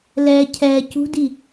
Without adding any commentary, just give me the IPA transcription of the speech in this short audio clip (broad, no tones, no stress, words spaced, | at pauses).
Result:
lɛ cʰɛ cṳdi